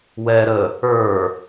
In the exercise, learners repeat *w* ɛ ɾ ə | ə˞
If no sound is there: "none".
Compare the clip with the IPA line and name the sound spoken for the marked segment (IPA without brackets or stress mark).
w